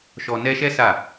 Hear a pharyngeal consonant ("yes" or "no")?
no